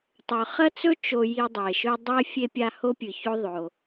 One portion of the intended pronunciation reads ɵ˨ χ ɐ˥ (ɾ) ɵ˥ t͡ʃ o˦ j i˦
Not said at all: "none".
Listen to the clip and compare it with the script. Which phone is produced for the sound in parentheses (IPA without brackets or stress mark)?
t͡s